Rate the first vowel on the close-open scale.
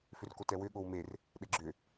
close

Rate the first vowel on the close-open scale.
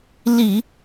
close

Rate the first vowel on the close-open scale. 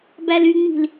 open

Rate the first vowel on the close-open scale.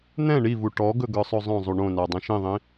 mid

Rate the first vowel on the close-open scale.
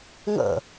mid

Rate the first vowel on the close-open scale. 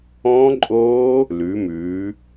mid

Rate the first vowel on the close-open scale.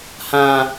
open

